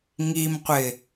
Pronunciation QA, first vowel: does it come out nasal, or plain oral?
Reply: oral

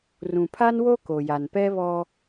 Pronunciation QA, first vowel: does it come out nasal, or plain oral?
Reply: nasal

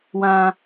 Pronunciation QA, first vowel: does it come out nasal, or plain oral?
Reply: nasal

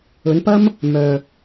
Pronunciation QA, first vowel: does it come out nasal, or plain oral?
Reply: oral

